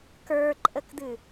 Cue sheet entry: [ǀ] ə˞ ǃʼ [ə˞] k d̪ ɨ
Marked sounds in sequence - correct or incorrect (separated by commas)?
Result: incorrect, incorrect